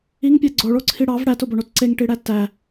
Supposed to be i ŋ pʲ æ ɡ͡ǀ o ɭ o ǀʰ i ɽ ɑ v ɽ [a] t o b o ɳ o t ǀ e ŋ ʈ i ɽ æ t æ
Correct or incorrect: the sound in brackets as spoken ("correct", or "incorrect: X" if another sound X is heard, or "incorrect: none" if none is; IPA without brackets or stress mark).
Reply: incorrect: æ